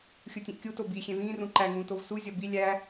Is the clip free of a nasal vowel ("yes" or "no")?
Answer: no